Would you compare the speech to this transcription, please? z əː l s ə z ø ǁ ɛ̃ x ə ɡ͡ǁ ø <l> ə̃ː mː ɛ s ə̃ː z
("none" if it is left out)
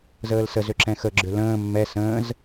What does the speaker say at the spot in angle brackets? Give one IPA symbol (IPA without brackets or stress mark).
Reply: l